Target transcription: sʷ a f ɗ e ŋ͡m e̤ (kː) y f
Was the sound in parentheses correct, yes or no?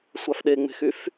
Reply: no